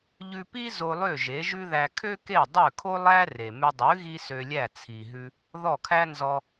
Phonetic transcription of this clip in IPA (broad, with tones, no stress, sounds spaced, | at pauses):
ʎ ʉ˧ p i˥ z o˧ lˠ ø˥˩ ʒ e˩˥ ʒ ʉ˥ ð æ˧ kʰ ø˥ k e˥˩ dˤ ø˥˩ kʰ o˥ lˠ æ˥ r e˩ m ʉ˧ dˤ ʉ˩˥ ɣ i˥ s ø˧ lʲ æ˥˩ t͡sʰ i˩ ɦ ʉ˧ | ð ɔ˥˩ kʰ æ˥ n z ɔ˧